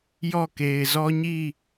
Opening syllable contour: falling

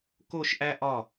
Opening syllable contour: falling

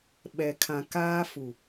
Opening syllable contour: low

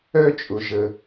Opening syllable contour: high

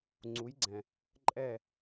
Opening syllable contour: rising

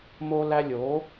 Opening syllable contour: high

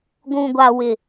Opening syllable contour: low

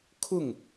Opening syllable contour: falling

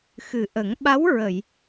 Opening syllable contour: low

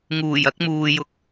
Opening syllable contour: low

